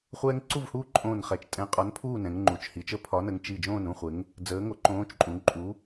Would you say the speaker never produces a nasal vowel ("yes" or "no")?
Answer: no